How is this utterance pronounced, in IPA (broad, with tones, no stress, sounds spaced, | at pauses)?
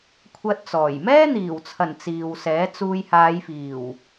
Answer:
kʷʰ ɐ˧ t̚ t͡s ɔː˨˩ j m ɛː˥ n̪ iː˨˩ w t͡sʰ ɐ˨˩ n t͡s iː˨ w s ɛː˨˥ t͡s uː˧ j h aː˨˧ j f iː˨˩ w